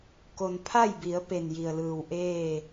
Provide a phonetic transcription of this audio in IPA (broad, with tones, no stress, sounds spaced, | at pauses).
k o˩ n pʰ a˥˨ j b i˩˧ ə̯ p e˧˩ n j i˩ ə̯ l ɯː˧˩ w ʔ eː˥˨